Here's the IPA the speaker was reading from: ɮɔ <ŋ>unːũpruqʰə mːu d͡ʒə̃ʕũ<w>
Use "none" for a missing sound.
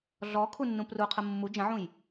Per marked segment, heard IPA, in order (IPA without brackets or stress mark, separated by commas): kʰ, j